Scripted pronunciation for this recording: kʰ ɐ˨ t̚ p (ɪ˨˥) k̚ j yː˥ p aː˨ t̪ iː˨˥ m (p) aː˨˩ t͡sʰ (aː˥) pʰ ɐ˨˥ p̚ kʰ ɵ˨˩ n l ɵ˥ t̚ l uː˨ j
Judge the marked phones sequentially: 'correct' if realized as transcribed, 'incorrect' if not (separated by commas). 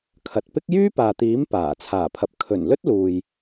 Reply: incorrect, correct, incorrect